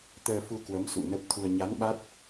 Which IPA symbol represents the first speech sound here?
t̪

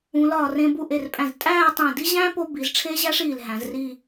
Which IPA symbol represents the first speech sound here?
ũ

